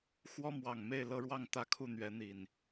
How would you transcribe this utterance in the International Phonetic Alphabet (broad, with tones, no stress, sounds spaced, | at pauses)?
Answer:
x w ɔ˦ m w ɑ˨˩ ŋ m e˥˨ ɪ̯ l ɤ˦ ɻ w ɑ˥˨ ŋ t̪ ä˦ kʰ u˥˨ n̪ ɥ ɛ˨˦ n̪ i˨˩ n